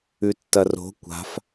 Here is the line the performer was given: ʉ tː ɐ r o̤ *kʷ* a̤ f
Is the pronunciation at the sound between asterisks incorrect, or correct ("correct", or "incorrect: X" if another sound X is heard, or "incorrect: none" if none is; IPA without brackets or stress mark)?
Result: correct